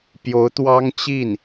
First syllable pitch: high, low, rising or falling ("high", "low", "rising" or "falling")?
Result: rising